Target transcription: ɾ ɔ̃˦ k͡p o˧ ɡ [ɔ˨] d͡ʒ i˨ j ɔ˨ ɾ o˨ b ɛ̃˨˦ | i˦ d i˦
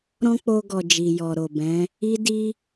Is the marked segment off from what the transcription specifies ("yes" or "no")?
no